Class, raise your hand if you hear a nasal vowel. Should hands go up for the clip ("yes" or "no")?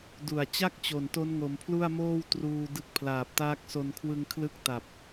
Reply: no